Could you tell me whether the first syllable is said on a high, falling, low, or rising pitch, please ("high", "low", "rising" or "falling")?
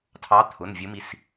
rising